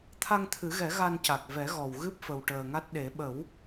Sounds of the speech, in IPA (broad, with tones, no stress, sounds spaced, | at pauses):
t̪ʰ a˧ ŋ t̪ʰ ɨ˨˩˦ ɣ ɛ˨˩˦ ɣ a˧ n c a˨˩ k̚ v ɛ˨˩˦ ɣ ɔ˨˩ w ɣ ɨ˦˥ p̚ f ə˨˩ w ʈ əː˨˩ ŋ a˦˥ t̚ ɗ e˨˩˦ ɓ ə˨˩˦ w